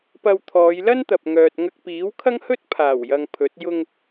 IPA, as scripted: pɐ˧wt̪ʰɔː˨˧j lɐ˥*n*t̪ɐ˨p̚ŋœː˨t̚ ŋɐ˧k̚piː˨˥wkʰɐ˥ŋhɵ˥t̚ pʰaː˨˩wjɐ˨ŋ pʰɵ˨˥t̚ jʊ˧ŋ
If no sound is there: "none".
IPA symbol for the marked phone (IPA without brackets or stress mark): n